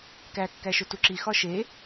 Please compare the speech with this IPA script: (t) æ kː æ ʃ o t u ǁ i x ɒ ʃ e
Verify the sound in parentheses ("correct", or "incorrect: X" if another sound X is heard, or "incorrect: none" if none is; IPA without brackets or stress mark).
incorrect: k